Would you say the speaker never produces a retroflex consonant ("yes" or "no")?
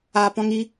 yes